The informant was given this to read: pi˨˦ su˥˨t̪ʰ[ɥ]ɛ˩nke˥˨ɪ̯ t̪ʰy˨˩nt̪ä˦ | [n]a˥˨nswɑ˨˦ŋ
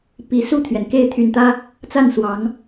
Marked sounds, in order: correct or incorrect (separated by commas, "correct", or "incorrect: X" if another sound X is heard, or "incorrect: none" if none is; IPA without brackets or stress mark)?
correct, incorrect: t͡s